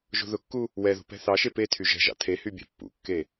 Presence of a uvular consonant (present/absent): absent